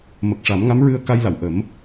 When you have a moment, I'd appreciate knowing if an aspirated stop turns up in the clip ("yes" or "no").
no